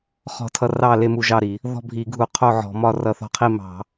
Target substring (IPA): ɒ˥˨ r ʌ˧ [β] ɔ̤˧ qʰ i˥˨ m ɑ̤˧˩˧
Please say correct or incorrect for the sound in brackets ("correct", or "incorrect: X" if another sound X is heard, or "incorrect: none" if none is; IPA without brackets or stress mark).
incorrect: θ